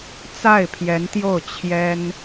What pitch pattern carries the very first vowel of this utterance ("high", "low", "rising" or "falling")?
falling